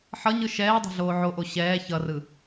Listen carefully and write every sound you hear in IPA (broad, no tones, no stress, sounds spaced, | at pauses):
ħ ʌ ɲ ɯ ʃ ɛː dˤ o̤ ɮ oː ʕ o ʔ o ɕ ɛː ç ʌ r ɯ